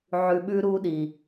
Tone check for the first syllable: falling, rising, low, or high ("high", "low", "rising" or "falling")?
low